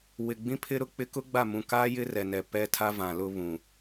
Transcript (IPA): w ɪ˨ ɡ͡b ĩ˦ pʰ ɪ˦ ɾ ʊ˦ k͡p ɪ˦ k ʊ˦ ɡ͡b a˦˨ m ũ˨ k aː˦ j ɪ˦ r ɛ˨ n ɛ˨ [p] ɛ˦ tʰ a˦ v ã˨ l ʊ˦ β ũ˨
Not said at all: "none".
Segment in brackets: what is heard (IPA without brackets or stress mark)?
p